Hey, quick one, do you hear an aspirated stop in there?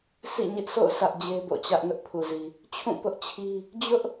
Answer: yes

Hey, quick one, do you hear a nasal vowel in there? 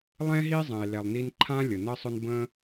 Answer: yes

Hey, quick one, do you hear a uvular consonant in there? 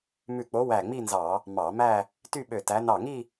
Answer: no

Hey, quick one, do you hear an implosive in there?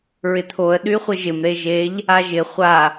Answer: yes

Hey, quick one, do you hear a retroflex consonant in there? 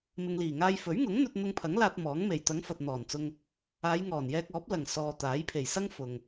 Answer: no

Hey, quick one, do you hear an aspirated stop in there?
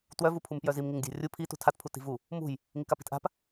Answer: yes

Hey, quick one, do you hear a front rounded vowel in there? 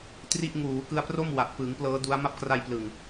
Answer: no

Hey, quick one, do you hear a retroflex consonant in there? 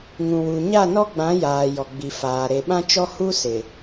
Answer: no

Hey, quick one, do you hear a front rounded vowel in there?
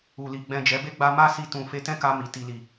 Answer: no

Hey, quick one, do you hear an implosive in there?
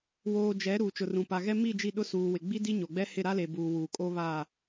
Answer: yes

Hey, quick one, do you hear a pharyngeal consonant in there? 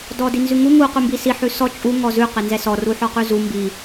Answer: yes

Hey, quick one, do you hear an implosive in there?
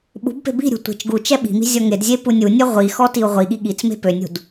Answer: yes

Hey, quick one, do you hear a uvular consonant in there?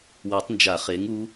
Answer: yes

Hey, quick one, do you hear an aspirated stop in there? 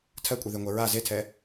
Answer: yes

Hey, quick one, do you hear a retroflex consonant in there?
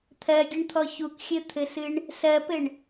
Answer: yes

